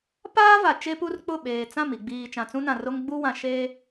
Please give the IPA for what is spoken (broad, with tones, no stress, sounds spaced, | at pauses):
p aː˦ v a˨ t͡ʃ e˦ p u˦ r k͡p ʊ˦˨ ɓ eː˨ t͡s ã˦˨ m i˨ ɡ͡b iː˨ t͡ʃ ã˨ t͡s ũ˦ n ã˨ r o˦ ŋ ɡ͡b u˦ w ã˨ ʃ e˦